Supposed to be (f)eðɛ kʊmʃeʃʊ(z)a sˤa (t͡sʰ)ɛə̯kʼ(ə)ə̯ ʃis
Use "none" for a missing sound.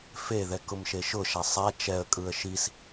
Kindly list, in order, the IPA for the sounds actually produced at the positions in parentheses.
f, ʃ, t͡ʃ, ɯ

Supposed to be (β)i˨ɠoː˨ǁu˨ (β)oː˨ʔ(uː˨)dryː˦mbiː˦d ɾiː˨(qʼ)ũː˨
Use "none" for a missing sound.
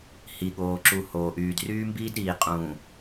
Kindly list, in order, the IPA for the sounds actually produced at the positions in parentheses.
h, h, yː˨, qʼ

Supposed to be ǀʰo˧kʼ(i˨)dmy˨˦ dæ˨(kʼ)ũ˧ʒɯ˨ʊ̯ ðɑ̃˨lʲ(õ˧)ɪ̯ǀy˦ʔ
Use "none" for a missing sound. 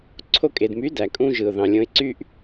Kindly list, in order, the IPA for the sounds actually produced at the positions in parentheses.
e˨, kʼ, õ˧

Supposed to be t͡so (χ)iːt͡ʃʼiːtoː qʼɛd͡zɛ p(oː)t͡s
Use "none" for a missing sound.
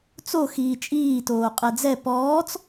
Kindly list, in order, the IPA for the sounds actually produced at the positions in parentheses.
x, ɔː

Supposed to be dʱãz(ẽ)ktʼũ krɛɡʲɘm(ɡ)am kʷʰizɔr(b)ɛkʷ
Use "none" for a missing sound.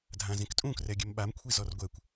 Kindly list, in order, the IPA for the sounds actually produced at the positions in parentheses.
ẽ, ɓ, ɡʷ

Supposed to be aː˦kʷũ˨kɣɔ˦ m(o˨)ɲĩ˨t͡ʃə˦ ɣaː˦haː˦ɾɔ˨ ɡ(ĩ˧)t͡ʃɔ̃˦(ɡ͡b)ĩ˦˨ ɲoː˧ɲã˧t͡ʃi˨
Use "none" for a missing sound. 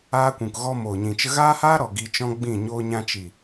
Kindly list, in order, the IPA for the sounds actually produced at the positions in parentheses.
o˨, i˧, ɡ͡b

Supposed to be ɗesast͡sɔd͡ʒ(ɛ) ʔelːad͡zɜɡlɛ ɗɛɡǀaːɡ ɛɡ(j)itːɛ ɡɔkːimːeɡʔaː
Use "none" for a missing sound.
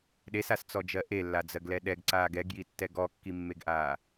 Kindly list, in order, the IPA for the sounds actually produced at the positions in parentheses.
ɜ, j

